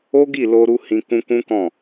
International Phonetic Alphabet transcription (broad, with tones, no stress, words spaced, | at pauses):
o˦ɡi˦˨lo˧ɾu˧ hĩ˧ kũ˧kũ˦kɔ̃˦˨